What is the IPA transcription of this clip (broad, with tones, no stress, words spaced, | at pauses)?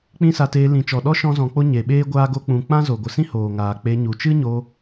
k͡pĩ˦sa˧teː˧ lĩ˨t͡ʃɔ˨ɗɔ˦ ʃɔ̃˦zɔ̃˧k͡po˦ ɲe˨ɓeː˦ ɡʷaː˦ɡo˦k͡pũ˧ k͡pã˦zo˨ɡʷə˨ sĩ˦hoː˨ŋaː˨ k͡pe˧ɲu˨ t͡ʃɨ˦ɲo˧